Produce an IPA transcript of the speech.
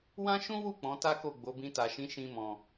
w ã˦ ʃ ũ˦ w u˦˨ k͡p ɔ̃˨˦ t a˦ k o˦˨ ɡ͡b o˨˦ b ĩ˧ t a˨ ʃ ĩ˨˦ ʃ ĩ˧ m ɔ̃˨

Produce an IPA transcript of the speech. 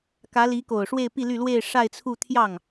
k ä˧˥ l i˧˥ k o˨˩ ʊ̯ ʂ w e˥˧ ɪ̯ p i˥˧ l y˥˧ l w e˥˧ ɪ̯ ʂ a˥˧ ɪ̯ t͡sʰ u˥˧ t̪ʰ j ɑ˥˩ ŋ

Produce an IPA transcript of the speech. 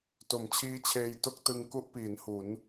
t o˩˦ m t͡ɕʰ iː˦˥ t͡ɕʰ eː˧ j t o˥˩ k̚ t ɯ˧ ŋ k u˥˩ ʔ p iː˩˦ n h u˩˦ n

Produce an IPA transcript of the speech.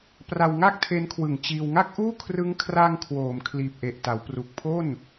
p r a˧ w ŋ a˥˩ k̚ tʰ e˦˥ n kʰ w ɯ˨˩ ŋ t͡ɕ iː˧ w ŋ a˥˩ k̚ ʔ uː˥˩ kʰ r ɯ˦˥ ŋ kʰ r a˧ ŋ kʰ w oː˩˦ m kʰ l iː˨˩ p̚ ʔ e˨˩ ʔ t a˩˦ w p r u˨˩ k̚ pʰ o˥˩ n

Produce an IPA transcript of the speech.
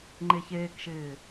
ŋ͡ǃ e ç eː k ʃ ɪː

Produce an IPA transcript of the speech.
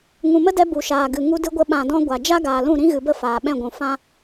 ŋ ũ˨ m ə˦ d ɛ˧ b u˨ ʃ aː˨ ɡ ɨ˨ ŋ u˧ d ɨ˧ ɡʷ ə˧ ɓ ã˨ d ɔ̃˧ ɡʷ a˨ d͡ʒ a˦ ɡ aː˨ l ũ˦˨ ɾ ĩ˦ ɣ ɨ˨ b ə˦˨ f aː˨ ɓ ɛ̃˦˨ ɡʷ ũ˨ f ã˦

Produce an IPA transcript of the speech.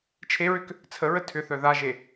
t͡ʃʰ e ɹ ʏ k | t͡sʰ ə ɹ ə tʰ ʏ θ œ ð a ʒ e

